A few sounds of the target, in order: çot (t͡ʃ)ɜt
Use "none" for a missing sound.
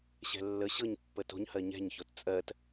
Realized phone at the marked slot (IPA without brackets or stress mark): t͡sʼ